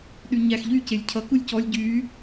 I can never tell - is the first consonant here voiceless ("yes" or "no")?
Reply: no